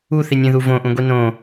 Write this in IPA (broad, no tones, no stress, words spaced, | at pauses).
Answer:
uθinʲẽðu võʔũɡʷi nõ